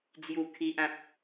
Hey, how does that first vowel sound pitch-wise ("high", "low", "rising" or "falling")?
low